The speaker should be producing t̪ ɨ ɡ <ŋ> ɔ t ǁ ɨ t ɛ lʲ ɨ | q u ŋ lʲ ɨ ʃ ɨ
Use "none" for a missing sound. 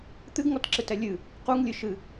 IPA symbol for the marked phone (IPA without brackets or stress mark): ŋ